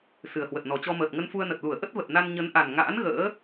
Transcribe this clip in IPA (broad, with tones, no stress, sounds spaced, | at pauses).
s ɨ˨˩ ə̯ h w ə˨˩ t̚ n ɔ˨˩ t͡ɕ ɔ˧ m əː˨˩ t̚ ŋ ə˧ n f u˧ ə̯ n ə˨˩ t̚ l u˧˩ ə̯ ʔ ə˦˥ t̚ v ə˨˩ t̚ n a˧ n ɲ ə˨˦ n ʔ a˨˩ n ŋ a̰ː˧˥ n ɣ ə̰ː˧˥